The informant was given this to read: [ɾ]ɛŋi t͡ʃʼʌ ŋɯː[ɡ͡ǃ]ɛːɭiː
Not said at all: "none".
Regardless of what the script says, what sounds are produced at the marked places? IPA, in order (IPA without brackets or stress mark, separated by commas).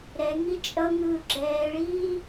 ɾ, ɡ͡ǁ